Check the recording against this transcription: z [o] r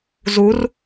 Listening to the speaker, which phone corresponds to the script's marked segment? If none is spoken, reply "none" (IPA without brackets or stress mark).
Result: u